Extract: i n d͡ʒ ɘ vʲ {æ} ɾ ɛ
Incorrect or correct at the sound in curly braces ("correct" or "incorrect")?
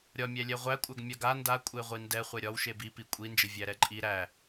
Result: correct